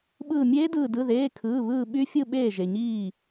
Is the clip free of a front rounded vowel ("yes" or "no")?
no